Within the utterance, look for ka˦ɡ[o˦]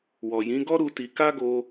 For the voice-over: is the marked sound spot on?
no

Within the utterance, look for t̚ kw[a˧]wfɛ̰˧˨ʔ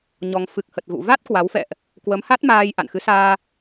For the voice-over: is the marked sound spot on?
no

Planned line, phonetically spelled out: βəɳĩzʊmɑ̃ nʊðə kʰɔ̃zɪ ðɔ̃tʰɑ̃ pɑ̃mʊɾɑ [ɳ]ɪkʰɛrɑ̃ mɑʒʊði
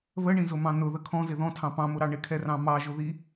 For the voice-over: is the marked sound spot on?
yes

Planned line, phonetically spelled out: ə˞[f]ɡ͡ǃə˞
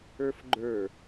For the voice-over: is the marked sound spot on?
yes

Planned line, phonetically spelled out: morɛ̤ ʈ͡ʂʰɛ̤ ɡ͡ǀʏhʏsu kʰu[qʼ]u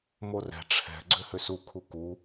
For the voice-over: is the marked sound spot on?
no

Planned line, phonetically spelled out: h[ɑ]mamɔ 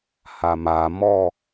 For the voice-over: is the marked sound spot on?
no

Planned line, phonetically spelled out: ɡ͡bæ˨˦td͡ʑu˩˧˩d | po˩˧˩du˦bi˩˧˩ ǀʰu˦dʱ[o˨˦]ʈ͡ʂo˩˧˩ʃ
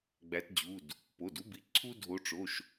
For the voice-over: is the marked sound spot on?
yes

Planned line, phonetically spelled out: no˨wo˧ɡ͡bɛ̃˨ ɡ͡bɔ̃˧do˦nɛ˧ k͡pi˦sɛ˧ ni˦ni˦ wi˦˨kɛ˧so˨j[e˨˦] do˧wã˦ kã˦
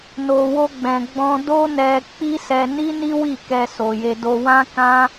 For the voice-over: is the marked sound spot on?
no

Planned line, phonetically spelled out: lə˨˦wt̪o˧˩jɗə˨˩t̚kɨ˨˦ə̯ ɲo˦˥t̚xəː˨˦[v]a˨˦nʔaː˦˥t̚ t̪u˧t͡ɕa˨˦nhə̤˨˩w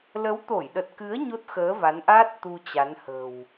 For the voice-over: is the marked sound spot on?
yes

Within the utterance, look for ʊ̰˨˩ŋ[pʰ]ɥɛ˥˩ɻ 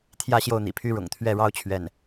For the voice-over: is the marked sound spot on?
no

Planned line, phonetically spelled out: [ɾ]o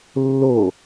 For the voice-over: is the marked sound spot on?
no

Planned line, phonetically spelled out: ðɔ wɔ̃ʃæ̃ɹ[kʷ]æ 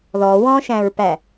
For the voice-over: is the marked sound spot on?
no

